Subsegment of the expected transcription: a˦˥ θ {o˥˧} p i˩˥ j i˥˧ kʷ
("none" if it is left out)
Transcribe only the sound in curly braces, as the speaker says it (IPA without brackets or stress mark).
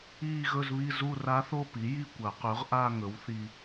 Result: o˥˧